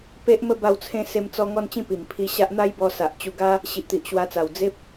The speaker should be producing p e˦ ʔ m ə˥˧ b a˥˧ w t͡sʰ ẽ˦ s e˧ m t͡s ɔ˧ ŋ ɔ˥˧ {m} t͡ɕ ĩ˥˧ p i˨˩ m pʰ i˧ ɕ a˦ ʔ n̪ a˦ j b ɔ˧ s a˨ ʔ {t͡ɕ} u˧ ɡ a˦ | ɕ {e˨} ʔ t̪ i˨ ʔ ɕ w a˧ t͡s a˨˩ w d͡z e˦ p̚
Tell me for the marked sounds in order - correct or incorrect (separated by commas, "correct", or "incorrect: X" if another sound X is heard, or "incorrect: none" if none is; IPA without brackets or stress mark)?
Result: incorrect: n, correct, incorrect: i˨